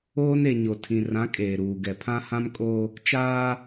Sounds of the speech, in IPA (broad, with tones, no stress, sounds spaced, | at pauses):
oː˦ n e˨ ɲ o˨ tʰ ĩ˨ r ã˨˦ kʼ eː˨ ɾ uː˨ ɡ ɛ˨ pʰ ã˦ h ã˦ m kʼ o˦ | t͡ʃ aː˦